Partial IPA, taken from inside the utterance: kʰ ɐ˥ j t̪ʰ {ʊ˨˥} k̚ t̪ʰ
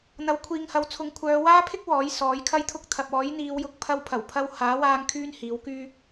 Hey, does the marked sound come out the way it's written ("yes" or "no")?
no